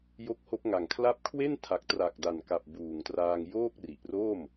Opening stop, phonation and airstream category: plain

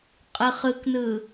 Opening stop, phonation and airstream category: ejective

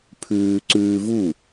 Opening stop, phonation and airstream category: aspirated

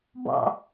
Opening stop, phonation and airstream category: plain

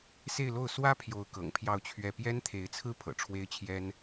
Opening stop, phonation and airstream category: aspirated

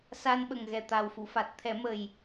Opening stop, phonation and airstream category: implosive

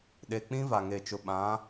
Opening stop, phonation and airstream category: implosive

